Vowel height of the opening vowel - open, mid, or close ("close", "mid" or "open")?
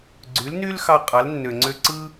close